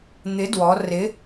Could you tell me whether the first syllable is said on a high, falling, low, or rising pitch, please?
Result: rising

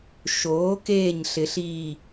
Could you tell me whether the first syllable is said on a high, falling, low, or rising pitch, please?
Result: rising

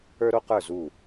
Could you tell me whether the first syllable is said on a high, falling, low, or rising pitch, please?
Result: high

